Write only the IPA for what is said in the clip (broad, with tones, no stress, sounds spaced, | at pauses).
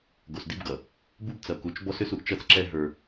ɡ o˨ s d i˦ b ɡ ʌ˨ | b u˦ b t͡s ʌ˨ k u˨ t͡ʃ b ɔ˦ s ʏ˦ s u˨ ʔ t͡ʃ ʌ˦ t͡s ǁ ɛ˦ ɦ ə˞˦